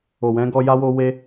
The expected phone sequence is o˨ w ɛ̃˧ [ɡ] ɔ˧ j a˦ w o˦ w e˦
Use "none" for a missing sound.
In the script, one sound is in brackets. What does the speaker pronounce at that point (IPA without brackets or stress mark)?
ɡ